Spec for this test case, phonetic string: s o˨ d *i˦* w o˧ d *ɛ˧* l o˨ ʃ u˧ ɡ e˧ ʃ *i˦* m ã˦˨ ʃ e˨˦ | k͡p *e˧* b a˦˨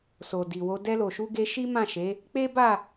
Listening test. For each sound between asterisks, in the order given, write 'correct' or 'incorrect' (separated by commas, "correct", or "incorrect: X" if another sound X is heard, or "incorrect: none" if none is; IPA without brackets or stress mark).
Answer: incorrect: i˨, correct, correct, incorrect: e˦